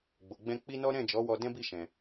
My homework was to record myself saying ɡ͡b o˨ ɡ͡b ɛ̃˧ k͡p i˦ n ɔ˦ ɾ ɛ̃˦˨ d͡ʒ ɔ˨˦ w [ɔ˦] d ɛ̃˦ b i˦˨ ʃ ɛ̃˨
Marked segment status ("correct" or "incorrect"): incorrect